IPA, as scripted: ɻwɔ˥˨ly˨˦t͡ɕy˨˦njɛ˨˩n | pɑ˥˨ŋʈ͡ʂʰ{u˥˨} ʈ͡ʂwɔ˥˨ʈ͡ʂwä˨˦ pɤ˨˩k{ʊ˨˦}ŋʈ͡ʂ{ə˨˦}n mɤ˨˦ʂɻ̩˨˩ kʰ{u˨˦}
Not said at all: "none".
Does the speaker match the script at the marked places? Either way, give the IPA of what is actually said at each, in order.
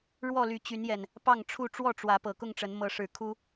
u˥˨, ʊ˥˨, ə˨˦, u˦

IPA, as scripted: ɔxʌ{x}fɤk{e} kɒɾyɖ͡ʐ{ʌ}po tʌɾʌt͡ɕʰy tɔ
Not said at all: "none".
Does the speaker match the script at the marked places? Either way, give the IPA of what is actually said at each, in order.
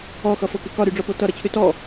none, e, ɔ

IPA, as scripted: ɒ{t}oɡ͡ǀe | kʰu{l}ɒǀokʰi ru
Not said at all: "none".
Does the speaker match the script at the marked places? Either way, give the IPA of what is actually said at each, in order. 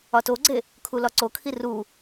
t, l

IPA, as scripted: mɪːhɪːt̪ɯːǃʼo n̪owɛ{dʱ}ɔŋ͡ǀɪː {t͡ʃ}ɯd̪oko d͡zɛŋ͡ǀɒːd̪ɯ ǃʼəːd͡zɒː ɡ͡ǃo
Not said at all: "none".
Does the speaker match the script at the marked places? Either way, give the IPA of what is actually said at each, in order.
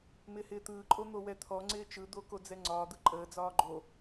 t̪ʰ, t͡ʃ

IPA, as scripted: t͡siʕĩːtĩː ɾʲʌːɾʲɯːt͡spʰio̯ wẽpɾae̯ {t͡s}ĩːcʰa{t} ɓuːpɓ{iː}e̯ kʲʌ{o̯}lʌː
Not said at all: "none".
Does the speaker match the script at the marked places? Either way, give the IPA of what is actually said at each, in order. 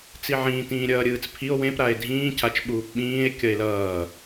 dʱ, t͡ʃ, ĩː, e̯

